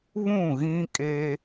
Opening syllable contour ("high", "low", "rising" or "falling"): falling